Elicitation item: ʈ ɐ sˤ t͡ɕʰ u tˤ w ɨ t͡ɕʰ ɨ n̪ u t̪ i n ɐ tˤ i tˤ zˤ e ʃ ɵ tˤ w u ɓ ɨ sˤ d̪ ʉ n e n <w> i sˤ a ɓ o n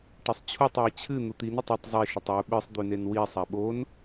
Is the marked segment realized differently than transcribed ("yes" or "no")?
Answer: no